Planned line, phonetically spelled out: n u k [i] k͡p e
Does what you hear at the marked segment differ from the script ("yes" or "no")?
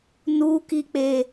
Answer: no